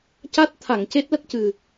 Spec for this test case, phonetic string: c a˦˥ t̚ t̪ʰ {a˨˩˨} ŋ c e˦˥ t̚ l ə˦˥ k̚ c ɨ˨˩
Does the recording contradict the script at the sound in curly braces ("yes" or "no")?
no